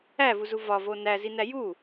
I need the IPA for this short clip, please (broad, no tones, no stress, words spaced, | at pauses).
ævuzu vɒvo næzinæ ju